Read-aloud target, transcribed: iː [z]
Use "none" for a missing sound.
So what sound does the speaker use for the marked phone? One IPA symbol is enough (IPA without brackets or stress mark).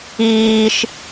ʃ